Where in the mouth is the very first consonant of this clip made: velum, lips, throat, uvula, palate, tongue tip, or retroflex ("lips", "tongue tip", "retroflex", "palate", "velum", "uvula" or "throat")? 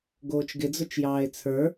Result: velum